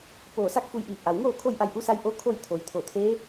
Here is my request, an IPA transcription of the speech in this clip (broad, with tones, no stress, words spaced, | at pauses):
poː˧˩sa˥˨k̚fu˧j ʔiː˧˩p̚ʔa˩wŋoː˥˨ kʰo˥˨jʔa˧jʔu˧˥sa˧˥j ʔo˧˥ kʰo˥˨j t̪ʰo˩˧jt̪ʰo˧˩t̪ʰe˧˥